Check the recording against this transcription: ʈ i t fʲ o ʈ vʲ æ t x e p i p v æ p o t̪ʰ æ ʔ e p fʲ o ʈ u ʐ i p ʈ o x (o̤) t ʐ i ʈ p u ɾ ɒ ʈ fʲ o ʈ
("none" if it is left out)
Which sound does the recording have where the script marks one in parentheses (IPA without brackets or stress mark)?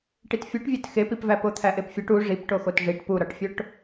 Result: o